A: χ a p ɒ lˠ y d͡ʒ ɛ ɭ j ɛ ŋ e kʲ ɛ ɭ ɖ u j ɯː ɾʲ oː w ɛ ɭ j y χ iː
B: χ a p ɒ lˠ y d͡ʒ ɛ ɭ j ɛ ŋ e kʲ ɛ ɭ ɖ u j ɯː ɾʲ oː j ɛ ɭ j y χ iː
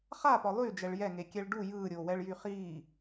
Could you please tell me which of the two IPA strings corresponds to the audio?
A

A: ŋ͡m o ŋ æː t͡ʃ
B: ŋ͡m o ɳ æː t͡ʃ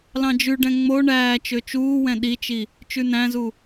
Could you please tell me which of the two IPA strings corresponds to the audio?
B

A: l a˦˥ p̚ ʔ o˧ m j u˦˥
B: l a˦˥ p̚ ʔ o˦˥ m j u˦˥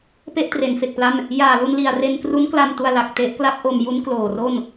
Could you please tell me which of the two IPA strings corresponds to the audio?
A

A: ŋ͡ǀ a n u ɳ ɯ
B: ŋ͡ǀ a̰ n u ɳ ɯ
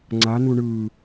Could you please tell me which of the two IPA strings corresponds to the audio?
A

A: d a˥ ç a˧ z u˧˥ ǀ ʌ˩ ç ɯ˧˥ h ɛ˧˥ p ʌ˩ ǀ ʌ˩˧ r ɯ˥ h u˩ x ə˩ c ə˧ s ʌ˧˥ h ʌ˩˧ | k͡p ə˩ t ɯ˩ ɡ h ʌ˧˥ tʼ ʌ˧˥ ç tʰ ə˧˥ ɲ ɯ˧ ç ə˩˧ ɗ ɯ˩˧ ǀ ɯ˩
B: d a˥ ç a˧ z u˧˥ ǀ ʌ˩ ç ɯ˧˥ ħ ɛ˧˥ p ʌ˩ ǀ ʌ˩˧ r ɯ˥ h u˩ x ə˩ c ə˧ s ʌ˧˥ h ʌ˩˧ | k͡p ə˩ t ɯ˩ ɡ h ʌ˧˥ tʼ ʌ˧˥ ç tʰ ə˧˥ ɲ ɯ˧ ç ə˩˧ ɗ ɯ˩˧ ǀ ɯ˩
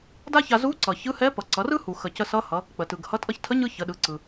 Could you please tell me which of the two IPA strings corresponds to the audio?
A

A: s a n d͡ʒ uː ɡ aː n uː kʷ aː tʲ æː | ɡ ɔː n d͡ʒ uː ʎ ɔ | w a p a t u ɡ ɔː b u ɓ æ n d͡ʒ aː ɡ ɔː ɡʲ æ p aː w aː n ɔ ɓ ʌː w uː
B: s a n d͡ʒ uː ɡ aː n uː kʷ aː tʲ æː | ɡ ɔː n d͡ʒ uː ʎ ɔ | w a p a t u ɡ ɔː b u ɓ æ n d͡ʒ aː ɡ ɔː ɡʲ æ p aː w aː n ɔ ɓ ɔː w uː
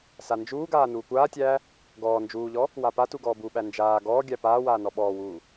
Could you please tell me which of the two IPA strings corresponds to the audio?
B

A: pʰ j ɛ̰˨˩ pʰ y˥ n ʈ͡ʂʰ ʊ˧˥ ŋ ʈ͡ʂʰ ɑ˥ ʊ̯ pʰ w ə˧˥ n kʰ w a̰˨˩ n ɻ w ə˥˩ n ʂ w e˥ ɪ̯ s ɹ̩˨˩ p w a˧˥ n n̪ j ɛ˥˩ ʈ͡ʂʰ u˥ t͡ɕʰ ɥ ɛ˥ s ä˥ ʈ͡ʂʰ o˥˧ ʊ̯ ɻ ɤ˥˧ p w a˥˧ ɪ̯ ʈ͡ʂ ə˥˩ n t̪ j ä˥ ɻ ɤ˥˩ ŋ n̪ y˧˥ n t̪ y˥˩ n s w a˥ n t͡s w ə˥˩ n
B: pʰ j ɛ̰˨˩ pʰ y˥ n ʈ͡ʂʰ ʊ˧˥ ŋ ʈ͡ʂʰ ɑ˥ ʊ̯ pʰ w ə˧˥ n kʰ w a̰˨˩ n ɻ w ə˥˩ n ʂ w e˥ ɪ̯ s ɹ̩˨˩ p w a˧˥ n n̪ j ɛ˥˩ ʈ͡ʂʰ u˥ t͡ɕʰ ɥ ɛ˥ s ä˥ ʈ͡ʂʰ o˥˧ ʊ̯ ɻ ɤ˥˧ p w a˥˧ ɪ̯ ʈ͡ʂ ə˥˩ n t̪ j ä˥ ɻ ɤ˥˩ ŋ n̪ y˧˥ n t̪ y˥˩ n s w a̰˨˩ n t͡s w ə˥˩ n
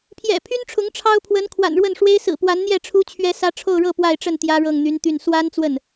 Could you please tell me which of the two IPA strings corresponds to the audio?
A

